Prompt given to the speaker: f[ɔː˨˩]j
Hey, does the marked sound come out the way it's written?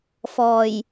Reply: yes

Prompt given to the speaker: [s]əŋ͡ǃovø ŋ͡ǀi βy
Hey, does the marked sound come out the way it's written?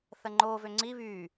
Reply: no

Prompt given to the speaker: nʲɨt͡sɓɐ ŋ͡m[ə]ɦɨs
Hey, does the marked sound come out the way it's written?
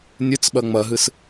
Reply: no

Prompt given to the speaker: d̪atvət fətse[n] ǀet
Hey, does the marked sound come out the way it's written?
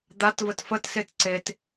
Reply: no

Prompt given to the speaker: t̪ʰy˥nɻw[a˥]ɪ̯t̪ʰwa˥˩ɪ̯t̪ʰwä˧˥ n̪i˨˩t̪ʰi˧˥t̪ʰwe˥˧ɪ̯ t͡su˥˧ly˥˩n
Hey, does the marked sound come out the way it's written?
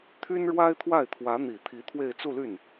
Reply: yes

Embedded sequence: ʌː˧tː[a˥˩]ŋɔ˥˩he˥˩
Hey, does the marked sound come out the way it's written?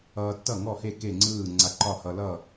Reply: no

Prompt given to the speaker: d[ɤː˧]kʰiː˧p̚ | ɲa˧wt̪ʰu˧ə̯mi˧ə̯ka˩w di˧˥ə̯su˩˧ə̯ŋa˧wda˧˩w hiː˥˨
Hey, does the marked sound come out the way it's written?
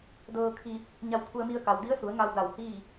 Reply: yes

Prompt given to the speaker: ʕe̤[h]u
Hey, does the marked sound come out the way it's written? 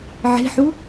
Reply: no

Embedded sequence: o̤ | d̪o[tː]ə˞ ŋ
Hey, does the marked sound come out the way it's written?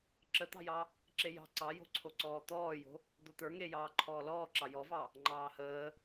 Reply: no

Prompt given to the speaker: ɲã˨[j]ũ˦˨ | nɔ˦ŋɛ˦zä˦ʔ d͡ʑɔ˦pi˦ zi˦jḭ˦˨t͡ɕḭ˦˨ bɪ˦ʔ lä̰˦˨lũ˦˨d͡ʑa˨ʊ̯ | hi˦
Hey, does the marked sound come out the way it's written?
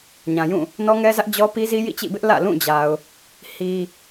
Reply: yes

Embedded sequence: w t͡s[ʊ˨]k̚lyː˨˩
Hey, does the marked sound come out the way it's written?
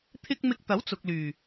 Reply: yes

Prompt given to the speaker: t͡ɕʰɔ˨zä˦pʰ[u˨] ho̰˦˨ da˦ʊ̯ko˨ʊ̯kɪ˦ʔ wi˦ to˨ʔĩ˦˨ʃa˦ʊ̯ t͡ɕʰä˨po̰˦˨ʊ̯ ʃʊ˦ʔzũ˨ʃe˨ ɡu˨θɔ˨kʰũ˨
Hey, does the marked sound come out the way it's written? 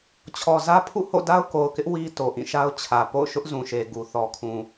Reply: no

